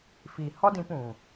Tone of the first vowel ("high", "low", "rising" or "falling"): low